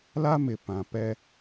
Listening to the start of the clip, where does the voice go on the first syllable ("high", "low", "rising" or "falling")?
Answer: high